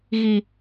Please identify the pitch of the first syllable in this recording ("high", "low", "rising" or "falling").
high